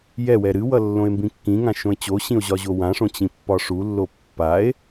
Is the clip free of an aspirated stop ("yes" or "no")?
yes